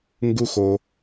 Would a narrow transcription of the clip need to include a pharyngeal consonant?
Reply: no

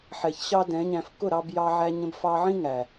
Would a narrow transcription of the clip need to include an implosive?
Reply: no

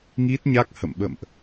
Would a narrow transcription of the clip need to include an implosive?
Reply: yes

